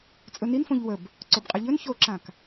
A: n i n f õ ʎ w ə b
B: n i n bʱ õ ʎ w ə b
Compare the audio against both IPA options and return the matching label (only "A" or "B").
A